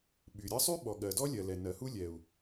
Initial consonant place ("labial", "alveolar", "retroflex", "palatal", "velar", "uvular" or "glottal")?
labial